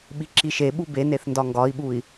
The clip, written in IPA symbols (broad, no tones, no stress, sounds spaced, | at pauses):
ɓ i ǁ i ʃ e ɓ u b e n e θ n d ɒ ŋ ɡ ɒ i̯ ɓ u i̯